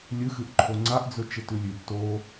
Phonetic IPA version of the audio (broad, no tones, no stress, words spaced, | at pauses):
lʲɨxɨʔǃʰo ŋ͡ǀaʔd͡zɵ t͡ʃetʉlʲʉɡ to